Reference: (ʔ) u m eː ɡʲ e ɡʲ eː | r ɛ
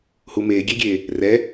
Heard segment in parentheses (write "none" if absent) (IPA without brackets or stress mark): h